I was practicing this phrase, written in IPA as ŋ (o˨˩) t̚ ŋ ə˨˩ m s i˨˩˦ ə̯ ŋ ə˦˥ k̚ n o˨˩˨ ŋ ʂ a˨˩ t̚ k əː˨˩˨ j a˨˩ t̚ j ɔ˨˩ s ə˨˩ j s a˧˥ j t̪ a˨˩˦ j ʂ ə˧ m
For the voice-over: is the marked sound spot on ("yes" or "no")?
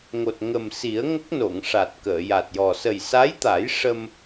yes